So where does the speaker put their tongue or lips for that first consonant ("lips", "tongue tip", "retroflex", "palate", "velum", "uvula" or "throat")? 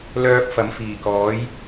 tongue tip